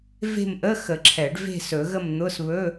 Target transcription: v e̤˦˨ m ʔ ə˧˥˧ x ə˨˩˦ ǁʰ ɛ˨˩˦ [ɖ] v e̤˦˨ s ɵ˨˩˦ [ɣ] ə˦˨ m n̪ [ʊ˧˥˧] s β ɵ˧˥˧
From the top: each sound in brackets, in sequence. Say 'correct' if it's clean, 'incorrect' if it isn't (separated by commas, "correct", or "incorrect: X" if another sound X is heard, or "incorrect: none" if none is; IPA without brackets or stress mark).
correct, correct, correct